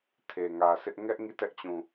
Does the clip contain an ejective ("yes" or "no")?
no